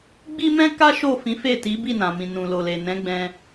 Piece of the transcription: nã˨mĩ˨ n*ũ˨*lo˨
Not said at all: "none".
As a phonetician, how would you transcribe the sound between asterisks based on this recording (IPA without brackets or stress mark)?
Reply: ũ˨